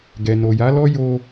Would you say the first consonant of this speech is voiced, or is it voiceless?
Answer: voiced